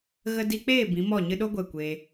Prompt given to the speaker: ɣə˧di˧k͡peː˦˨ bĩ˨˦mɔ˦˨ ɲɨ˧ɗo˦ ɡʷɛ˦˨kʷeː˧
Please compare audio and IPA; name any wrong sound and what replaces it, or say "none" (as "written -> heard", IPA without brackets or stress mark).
none